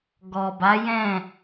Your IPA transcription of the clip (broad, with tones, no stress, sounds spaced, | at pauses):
ɡ ɔ˨ b a˨˦ j ɛ̃˦˨